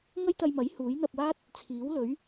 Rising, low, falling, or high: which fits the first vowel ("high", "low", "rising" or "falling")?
high